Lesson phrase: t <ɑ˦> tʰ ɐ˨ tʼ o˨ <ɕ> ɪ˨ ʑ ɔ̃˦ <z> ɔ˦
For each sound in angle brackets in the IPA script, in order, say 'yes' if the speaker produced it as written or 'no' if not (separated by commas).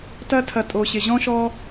no, yes, no